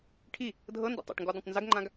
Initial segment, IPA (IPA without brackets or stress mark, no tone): ʈʰ